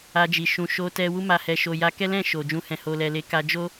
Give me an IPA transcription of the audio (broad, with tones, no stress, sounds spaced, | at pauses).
a˧ d͡ʒ i˨ ʃ ũ˨ ʃ o˧ t ɛ˧ w u˧ m a˨ h ɛ˨ ʃ o˨ j a˧ k ɛ˦ l ɛ̃˦˨ ʃ o˨ d͡ʒ ũ˧ h ɛ̃˨ h o˨ l ɛ˨ l e˨˦ k a˧ d͡ʒ o˦